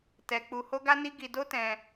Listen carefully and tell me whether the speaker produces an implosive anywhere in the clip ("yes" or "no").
no